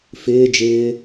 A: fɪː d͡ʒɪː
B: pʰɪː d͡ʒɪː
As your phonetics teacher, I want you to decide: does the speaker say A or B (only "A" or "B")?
A